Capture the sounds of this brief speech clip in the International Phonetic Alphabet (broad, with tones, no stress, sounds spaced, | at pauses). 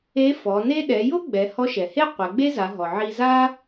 e˧˥ f ɔ˩˧ n e˥ ɗ ɛ˩˧ j o˥ ɡ͡b ɛ˩˧ h ɔ˧˥ ʃ ɛ˩ h e˥ qʷ ɛ˩˧ ɡ͡b e˥ z a˩˧ ɦ ɔ˩ ʕ i˧ z a˥